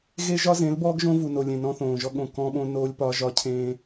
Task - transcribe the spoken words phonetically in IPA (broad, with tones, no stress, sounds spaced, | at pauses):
ɣ e˦ ʒ ɒ˦ z ẽ˨˦ l b ɔː˦ ɡ ʒ õ˦ v u˨ n o˨ lʲ ẽ˨ n ɔ̃˦ θ õː˨ ʒ ɔ˦ ɠ õ˨ k ɔ̃˦ ɓ õ˦ n oː˦ lʲ p ɒ˦ ʒ ɒ˦ cʰ ẽː˦